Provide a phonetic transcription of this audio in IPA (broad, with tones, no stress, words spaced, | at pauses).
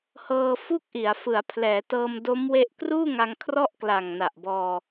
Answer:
hɤː˧fu˥˩k̚ʔi˩˦a̯ fɯ˩˦a̯pʰlɛː˩˦ tɤː˧mdo˦˥mwe˦˥ʔ kruː˥˩ŋa˧ŋ kʰrɔ˥˩ʔ kla˨˩ŋna˨˩ʔbɔː˧